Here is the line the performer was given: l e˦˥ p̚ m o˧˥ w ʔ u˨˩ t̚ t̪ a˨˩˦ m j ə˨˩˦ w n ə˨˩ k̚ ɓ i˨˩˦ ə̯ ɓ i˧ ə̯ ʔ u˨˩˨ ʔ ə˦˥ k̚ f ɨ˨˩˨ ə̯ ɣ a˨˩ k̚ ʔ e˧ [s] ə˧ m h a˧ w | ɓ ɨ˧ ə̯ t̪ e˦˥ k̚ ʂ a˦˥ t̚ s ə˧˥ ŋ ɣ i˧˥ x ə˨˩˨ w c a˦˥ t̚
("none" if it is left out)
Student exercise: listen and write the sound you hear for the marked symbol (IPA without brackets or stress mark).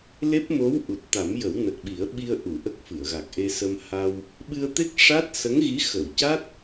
s